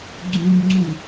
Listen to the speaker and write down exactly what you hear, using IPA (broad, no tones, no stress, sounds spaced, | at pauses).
ɡ͡ǀ ũ b ŋ͡ǀ ũ